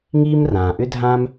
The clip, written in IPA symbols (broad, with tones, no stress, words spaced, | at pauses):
ŋiː˦m rãː˨ʔʏ˦dʱã˦m